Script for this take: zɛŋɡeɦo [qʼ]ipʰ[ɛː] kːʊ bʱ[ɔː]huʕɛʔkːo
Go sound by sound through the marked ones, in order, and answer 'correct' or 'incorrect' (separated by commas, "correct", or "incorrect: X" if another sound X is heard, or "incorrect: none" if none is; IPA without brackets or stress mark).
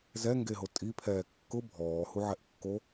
incorrect: tʼ, correct, correct